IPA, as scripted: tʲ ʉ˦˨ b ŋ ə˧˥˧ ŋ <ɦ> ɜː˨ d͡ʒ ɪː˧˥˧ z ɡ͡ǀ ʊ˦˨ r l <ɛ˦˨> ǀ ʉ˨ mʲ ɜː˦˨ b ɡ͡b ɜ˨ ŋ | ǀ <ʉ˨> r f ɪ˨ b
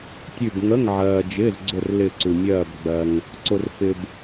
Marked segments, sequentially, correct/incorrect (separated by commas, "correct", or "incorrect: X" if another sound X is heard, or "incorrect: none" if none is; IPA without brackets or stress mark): incorrect: ʕ, incorrect: ɪ˦˨, incorrect: ʊ˨